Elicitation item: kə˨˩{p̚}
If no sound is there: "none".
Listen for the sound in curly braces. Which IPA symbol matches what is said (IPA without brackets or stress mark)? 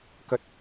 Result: t̚